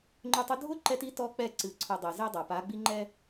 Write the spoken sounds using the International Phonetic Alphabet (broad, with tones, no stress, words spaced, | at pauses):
ŋ͡ǃʊ˦tˤʊ˦ dʱʊ˦ ǃɛ˦ti˦tɔ˦k͡pɛ˦˨ ǀɨ˨ǀʰʊ˨ dˤe˨ze˦dˤa˨ pa˨˦ɡ͡bi˦ ŋ͡ǃɛ˦